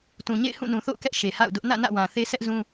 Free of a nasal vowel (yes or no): no